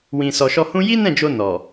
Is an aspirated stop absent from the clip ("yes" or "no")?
yes